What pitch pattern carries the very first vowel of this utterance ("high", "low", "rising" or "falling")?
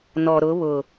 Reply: low